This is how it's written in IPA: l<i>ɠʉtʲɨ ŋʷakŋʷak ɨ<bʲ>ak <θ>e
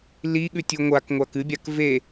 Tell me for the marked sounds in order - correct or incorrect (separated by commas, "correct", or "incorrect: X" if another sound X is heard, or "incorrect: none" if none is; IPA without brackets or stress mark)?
correct, correct, incorrect: v